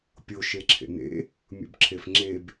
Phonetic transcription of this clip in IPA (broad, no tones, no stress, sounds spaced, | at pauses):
pʲ o ʃ e ǁʰ ḛ n ḛ | mʲ ṵ b ǁʰ e f ŋ͡ǁ e b